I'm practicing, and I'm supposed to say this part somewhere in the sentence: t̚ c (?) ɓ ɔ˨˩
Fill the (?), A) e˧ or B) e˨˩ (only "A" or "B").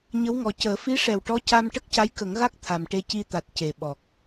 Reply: B